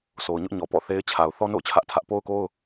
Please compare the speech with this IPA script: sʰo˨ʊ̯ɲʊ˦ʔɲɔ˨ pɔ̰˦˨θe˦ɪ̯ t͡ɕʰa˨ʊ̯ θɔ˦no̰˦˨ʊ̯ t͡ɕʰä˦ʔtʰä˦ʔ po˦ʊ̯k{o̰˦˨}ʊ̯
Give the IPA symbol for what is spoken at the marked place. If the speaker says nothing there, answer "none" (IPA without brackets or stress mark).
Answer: o˦